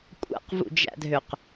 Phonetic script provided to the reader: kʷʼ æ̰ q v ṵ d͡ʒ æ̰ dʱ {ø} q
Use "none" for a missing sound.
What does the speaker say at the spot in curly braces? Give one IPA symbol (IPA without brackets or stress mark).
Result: ø